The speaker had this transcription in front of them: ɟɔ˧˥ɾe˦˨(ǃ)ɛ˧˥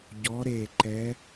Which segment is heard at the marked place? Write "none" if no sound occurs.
ǃ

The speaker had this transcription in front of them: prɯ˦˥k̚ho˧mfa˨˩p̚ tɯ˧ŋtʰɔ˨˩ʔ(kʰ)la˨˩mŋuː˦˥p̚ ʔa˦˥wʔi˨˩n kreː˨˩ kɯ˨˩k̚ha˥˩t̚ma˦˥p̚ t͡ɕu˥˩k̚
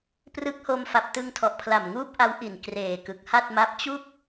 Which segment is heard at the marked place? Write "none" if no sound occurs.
pʰ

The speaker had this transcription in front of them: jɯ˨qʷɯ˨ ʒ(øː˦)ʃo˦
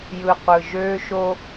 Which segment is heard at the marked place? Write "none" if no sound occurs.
øː˦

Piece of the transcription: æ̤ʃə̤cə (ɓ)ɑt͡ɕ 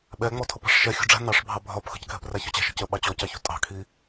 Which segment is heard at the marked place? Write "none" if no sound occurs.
ɓ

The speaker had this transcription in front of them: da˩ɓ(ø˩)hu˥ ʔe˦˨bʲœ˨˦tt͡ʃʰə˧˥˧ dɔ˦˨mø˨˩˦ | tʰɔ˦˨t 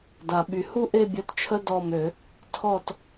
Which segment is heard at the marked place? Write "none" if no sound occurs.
y˩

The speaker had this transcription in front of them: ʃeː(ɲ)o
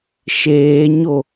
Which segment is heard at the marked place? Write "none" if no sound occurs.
ɲ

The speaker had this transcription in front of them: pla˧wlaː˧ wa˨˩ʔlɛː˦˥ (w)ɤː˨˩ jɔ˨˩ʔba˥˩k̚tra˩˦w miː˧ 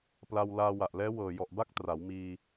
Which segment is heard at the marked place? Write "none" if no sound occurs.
w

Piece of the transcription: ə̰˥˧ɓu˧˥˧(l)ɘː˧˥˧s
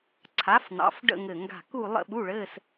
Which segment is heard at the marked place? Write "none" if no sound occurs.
ɭ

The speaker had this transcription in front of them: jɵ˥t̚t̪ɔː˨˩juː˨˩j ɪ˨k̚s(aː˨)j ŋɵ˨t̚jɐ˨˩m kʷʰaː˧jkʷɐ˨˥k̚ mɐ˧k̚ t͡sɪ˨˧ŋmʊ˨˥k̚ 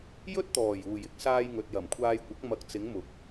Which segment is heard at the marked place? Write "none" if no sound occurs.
aː˧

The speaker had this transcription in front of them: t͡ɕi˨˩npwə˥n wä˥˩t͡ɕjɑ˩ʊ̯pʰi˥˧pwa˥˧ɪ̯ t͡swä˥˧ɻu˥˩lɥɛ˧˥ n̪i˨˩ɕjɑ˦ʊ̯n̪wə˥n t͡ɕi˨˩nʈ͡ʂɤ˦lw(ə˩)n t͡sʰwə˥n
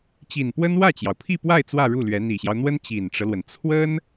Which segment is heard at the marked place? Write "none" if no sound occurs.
ə˩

